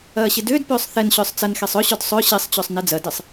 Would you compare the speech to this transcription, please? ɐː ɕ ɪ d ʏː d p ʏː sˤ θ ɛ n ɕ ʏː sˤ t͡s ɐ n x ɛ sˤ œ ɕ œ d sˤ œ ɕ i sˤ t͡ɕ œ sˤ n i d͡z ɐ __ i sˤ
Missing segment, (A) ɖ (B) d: B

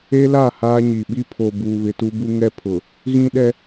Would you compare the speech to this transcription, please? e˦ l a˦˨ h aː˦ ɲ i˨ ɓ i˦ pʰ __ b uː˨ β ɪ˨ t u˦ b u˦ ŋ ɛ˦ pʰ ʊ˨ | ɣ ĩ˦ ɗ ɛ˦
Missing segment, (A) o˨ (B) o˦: A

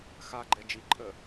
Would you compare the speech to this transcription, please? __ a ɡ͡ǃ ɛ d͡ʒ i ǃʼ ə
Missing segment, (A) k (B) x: B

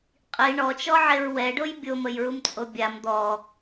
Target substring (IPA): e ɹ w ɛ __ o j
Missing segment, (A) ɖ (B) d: A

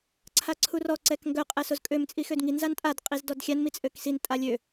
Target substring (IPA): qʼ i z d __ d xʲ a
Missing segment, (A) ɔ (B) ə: A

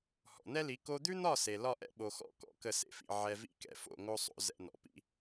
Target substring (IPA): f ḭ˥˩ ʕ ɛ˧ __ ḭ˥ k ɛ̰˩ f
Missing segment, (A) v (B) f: A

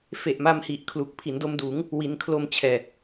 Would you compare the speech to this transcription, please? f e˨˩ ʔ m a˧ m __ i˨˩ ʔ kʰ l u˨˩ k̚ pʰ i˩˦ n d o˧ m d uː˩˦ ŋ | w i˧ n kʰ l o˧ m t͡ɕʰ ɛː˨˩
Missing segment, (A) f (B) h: B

